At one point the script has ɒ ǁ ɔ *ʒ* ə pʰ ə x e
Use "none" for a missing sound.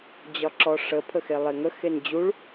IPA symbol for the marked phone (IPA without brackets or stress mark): ʂ